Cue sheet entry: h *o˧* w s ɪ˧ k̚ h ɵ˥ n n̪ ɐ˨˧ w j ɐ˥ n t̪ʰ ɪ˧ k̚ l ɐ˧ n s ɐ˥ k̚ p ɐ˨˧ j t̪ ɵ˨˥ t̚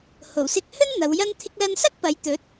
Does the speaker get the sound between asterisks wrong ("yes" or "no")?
yes